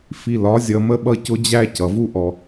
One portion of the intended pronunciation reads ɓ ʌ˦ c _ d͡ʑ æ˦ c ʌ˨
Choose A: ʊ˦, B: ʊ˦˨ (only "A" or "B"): A